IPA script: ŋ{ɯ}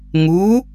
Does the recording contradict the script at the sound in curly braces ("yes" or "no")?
yes